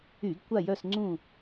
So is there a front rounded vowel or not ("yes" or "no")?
yes